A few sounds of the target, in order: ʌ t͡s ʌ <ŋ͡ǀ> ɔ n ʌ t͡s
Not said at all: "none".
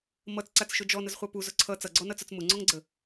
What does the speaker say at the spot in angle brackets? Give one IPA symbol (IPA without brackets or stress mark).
ɡ͡ǀ